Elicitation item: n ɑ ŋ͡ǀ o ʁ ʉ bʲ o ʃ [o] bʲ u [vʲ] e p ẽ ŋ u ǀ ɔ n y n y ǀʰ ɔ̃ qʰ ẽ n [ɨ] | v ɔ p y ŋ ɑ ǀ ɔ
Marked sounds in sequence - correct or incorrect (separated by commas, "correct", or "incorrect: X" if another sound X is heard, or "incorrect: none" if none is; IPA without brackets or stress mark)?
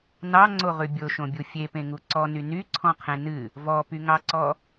incorrect: õ, incorrect: fʲ, correct